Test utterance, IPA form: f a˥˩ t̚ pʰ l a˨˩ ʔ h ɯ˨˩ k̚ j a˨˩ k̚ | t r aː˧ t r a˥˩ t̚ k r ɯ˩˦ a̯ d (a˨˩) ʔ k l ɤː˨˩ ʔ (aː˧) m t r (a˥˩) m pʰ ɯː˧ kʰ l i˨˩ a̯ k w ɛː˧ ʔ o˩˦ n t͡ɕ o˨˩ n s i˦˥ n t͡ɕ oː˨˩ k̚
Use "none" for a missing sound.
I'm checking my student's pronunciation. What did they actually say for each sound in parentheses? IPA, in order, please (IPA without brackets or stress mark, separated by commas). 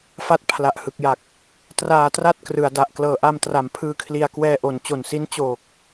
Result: a˨˩, a˧, a˩˦